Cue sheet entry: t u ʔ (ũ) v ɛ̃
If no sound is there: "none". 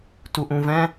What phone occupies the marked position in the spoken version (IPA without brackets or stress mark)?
ũ